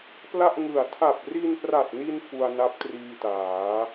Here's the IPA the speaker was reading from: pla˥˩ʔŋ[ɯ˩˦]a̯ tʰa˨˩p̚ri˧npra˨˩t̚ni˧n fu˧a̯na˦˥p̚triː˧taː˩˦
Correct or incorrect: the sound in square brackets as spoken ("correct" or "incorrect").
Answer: incorrect